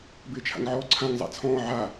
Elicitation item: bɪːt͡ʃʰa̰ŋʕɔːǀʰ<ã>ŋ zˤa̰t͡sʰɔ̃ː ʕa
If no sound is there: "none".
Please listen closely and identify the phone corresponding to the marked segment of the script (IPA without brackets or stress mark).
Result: ã